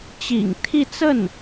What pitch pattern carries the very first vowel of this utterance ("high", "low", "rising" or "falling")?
low